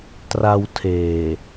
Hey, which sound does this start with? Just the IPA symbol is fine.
t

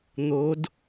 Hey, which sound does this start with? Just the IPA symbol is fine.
n̪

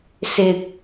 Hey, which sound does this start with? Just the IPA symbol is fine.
s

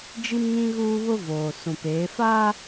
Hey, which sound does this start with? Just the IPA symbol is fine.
d͡ʒ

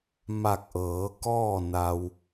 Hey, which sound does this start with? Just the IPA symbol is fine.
m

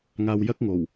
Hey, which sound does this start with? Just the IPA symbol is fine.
ŋ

